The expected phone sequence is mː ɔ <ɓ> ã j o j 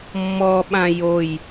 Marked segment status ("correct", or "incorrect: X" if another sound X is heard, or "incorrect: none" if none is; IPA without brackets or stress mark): correct